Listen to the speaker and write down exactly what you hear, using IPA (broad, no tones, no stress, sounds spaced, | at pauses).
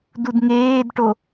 d u d ŋ eː d ʈ o